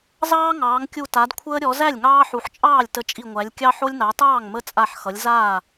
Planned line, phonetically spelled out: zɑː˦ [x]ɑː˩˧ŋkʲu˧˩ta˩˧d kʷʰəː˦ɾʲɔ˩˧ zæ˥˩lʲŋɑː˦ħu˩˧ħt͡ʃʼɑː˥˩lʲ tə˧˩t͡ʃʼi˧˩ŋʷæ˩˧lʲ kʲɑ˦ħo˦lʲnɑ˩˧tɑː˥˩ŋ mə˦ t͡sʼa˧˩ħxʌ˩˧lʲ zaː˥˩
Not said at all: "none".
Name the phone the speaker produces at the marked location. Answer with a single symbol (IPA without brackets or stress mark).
ŋ